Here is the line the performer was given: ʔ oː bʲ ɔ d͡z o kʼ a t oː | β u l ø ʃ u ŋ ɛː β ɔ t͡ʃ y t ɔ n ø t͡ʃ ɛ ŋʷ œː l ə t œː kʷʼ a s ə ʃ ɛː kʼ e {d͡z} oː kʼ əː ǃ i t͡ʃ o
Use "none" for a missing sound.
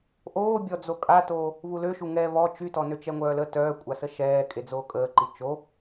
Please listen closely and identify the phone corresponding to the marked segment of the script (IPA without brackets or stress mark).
d͡z